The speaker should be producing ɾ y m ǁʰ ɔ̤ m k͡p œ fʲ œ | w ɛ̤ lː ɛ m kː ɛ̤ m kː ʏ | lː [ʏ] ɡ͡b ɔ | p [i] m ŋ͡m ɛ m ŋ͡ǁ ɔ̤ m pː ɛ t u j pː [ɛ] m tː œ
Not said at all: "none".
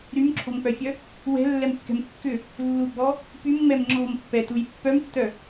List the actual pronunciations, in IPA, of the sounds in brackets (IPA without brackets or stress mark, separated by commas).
u, y, œ